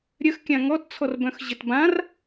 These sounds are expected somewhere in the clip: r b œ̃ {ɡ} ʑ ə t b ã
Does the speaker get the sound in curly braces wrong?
yes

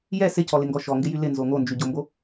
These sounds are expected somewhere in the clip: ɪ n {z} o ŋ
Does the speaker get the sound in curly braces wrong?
no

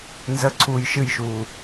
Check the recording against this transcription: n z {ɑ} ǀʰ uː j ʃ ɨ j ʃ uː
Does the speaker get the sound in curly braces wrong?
yes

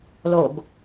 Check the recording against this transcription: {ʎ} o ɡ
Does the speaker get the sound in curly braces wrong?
yes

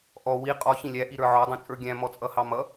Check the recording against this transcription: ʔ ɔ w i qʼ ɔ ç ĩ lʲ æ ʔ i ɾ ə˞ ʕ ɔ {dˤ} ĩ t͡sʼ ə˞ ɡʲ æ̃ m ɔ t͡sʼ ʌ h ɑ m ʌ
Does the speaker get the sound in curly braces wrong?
no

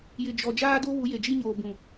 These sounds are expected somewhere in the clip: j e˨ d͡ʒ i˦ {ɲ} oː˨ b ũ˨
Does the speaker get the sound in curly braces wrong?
no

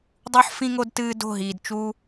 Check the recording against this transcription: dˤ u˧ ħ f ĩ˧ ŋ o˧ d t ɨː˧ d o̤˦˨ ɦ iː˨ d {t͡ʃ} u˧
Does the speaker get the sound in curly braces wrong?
no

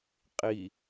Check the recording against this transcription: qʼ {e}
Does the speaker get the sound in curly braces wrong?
yes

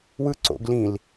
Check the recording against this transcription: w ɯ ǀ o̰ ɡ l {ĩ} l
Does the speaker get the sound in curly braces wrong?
no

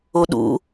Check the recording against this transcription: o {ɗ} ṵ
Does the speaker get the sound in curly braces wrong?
no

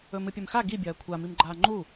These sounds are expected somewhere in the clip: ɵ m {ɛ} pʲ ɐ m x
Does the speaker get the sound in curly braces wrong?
yes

